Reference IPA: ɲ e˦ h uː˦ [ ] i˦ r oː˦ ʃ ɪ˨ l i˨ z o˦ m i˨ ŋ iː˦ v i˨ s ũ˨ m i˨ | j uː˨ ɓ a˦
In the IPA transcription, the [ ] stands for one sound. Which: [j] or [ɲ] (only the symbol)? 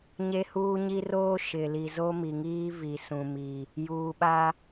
ɲ